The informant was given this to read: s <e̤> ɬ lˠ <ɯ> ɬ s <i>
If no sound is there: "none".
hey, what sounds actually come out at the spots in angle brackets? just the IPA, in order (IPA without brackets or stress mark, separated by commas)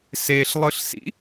e, ɯ, ḭ